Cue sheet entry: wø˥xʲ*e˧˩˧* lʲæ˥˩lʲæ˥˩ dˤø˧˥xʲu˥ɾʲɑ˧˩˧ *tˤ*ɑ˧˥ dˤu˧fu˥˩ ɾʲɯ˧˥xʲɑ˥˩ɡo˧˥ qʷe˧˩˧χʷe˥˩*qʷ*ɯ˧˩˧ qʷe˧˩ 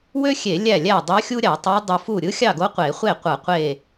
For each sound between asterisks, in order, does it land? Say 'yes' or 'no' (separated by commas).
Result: yes, yes, yes